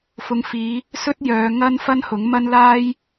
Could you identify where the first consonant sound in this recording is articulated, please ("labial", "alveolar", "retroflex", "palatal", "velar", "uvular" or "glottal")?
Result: labial